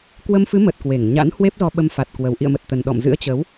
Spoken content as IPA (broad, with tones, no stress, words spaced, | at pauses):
kwə˧mfɨ˨˦mə˨˩t̚ kwe˧˩ŋɲa̰˧˥n hwe˦˥p̚zɔ˧ɓə˧m fa˨˩t̚ kwə˨˩wʔḭ˧˨ə̯mə˨˩t̚t̪ə˨˩n ɗɔ̰˧˨mzɨ̰˧˥ə̯t͡ɕə˨˦w